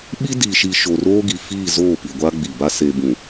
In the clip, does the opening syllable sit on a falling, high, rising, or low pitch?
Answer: high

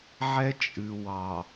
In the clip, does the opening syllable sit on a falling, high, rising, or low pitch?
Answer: high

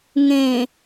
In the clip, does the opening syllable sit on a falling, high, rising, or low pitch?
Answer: low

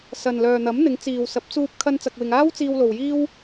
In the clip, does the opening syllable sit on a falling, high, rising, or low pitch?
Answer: low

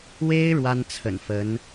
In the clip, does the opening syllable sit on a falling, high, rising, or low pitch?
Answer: high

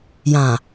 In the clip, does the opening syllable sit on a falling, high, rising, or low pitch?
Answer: low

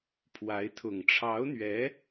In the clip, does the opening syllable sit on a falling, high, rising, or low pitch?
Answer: rising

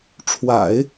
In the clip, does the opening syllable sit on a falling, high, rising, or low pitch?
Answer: low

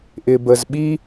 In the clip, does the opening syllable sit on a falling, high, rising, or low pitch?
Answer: low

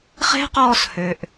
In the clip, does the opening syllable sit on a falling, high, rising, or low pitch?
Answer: high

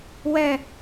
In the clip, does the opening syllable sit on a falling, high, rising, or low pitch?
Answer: falling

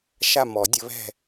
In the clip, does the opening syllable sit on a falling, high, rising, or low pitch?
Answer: falling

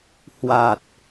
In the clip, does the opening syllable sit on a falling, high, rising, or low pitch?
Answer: low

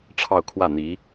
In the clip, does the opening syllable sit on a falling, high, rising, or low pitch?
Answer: falling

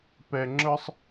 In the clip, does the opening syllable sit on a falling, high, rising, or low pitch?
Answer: low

